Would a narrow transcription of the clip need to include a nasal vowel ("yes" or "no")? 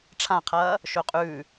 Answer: yes